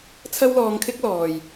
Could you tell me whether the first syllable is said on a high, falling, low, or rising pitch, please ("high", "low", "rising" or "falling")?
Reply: high